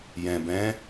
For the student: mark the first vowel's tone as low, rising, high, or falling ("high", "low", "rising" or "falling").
low